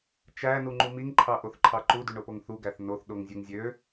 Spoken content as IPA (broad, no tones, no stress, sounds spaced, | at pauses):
t͡ʃ æ n u ŋ͡ǃ u m i ŋ ǃʰ ɑ ʔ o θ ǃʰ ɑ ǃ u d y ɳ o p o ŋ θ u ɡ æ θ n o θ ɗ o ŋ zʲ u ŋ zʲ ø